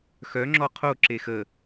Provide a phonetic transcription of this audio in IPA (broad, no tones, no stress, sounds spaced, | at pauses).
x œ ŋ͡ǁ ɔ qʰ o ǁ e x ə